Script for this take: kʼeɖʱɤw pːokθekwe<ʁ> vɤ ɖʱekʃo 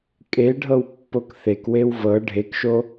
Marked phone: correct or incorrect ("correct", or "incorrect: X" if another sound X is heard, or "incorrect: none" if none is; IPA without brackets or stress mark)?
incorrect: w